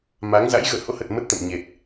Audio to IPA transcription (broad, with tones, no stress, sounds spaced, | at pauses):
m a˨˦ ŋ z a̰˧˥ j ɣ ə̰ː˧˨ h o̰˧˥ h ə˨˩ t̚ m ə˦˥ t̚ t̪ ə̰˧˨ m ɲ e˨˩ t̚